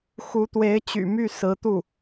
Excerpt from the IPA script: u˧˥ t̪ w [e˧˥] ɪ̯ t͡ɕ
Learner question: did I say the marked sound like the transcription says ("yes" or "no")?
yes